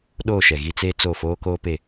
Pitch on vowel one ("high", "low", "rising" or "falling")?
falling